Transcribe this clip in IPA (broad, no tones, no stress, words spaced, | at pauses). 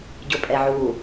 ɟʊpʼɛʕu